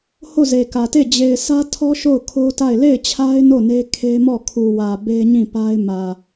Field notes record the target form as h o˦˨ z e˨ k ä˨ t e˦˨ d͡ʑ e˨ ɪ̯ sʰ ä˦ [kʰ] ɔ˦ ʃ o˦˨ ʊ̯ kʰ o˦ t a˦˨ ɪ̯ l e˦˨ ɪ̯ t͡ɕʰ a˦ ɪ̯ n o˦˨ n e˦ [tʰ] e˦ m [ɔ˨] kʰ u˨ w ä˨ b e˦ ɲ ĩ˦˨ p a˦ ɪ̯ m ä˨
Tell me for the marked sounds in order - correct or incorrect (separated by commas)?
incorrect, incorrect, incorrect